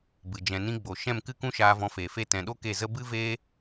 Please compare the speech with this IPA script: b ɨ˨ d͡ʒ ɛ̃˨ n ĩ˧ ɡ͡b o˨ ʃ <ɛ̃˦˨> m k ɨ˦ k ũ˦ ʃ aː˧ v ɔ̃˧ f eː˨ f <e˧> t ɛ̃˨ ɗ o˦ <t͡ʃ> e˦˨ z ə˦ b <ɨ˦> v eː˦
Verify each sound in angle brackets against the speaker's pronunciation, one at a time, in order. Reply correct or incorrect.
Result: correct, incorrect, incorrect, correct

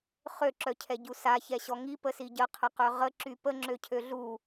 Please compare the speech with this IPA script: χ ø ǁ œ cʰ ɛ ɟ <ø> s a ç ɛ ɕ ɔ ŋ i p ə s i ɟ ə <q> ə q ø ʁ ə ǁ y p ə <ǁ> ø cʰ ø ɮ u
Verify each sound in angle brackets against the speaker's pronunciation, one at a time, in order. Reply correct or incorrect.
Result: incorrect, incorrect, incorrect

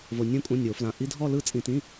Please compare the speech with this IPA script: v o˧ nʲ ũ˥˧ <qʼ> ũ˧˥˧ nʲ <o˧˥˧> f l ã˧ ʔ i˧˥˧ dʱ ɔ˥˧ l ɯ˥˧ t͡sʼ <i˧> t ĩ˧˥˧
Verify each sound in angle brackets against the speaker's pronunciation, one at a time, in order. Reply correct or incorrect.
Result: incorrect, incorrect, incorrect

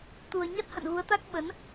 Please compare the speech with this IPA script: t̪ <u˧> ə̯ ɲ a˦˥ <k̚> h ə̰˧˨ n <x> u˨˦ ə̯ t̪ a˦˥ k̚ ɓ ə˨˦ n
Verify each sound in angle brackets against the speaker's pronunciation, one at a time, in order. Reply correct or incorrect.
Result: correct, incorrect, incorrect

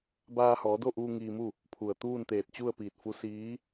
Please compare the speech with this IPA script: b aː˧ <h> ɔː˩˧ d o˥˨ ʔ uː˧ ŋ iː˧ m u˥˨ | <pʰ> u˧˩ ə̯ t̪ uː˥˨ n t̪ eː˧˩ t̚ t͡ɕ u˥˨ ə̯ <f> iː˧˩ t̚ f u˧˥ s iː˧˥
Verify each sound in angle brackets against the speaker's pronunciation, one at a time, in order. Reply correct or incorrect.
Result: correct, correct, incorrect

